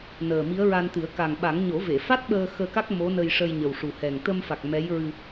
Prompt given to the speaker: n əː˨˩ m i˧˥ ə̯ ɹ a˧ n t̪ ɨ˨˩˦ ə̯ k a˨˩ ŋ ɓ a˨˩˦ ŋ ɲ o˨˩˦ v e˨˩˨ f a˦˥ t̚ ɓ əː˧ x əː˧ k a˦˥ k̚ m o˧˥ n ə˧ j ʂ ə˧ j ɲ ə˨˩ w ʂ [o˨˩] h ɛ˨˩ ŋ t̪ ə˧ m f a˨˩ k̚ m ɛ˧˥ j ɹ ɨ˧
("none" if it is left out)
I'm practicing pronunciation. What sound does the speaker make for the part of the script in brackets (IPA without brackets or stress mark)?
u˨˩